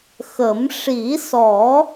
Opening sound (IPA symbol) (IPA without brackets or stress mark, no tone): x